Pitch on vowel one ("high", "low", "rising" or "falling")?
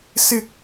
high